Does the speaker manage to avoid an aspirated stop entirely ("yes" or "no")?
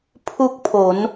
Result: no